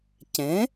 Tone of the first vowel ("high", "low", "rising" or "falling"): rising